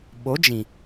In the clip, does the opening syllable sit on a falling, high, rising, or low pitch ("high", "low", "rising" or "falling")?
rising